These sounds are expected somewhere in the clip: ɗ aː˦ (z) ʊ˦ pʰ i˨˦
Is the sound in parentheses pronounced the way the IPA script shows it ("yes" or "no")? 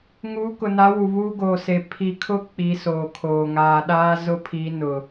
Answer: yes